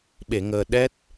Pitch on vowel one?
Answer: low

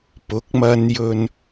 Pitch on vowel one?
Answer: rising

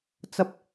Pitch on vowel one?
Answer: high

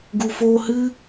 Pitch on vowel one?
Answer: low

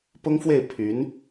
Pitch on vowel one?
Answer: high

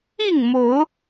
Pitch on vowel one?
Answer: falling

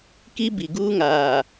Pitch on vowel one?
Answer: high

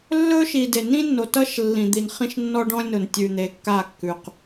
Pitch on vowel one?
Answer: high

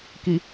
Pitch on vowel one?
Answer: low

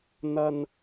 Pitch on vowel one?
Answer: low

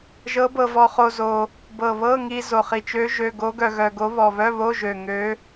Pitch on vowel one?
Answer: rising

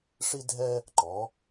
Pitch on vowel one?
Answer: high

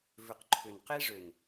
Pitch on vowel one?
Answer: low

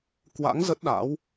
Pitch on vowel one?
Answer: rising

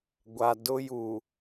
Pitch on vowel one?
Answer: low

